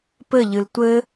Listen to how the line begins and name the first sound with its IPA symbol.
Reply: p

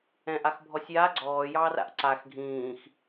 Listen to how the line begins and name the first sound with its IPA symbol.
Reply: ɛ̃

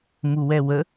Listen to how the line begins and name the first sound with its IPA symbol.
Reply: m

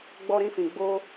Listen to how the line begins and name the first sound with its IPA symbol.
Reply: ɡ͡b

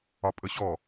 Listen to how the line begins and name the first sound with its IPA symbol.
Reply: ɒ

